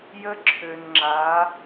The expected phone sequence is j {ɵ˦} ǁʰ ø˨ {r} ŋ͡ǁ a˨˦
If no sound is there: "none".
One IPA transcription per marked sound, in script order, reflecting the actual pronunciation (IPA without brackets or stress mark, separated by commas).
ə˦, n